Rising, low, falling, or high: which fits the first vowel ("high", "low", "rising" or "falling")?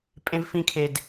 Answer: high